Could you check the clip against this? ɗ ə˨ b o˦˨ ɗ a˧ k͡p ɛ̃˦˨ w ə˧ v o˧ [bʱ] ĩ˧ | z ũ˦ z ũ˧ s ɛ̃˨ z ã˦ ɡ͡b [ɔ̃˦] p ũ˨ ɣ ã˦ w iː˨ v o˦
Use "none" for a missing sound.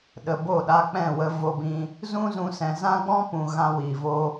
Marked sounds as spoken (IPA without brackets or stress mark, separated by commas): b, ɔ̃˦